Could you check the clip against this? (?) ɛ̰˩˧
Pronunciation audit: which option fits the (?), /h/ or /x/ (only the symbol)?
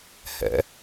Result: h